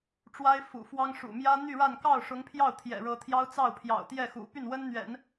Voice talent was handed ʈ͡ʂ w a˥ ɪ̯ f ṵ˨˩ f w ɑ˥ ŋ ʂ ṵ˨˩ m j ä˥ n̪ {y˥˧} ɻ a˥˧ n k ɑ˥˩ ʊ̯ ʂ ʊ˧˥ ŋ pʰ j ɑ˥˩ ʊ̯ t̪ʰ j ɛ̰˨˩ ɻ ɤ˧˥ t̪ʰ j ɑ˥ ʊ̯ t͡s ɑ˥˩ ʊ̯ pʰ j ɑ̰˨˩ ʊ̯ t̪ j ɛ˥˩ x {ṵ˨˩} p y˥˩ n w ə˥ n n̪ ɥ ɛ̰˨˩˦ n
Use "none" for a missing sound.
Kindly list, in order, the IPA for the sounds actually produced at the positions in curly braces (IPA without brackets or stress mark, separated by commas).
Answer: y˥˧, ṵ˨˩